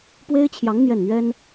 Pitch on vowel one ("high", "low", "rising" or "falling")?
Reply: high